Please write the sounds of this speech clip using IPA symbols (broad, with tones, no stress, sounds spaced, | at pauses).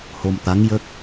h o˧ m t̪ a˧˥ ŋ j ə˦˥ k̚